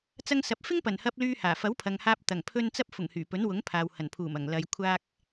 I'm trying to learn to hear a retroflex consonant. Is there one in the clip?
no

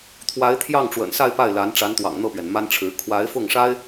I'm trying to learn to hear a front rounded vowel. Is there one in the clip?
no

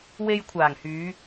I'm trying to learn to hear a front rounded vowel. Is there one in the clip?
yes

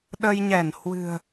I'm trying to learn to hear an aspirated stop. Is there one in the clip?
no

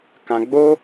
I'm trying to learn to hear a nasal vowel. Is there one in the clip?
yes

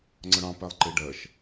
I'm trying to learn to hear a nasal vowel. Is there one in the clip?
yes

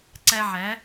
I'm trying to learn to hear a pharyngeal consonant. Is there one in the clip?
yes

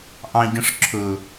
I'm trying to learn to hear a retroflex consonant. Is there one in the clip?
yes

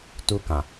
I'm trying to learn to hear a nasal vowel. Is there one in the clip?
yes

